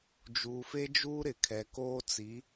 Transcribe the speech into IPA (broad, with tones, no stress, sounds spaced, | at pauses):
d͡ʒ uː˨ f e˦ d͡ʒ uː˦ ɾ ɪ˨ kʰ ɛ˨ k oː˦ t͡s i˨˦